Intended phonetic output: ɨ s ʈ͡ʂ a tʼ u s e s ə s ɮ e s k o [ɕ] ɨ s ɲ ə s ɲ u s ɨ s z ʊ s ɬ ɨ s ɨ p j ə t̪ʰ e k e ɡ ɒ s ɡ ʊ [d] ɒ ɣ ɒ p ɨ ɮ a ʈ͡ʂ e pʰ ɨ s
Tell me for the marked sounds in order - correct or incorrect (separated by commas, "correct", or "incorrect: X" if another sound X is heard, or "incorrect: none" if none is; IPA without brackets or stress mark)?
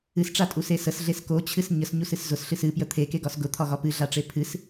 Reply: incorrect: t͡ɕʰ, incorrect: t̪ʰ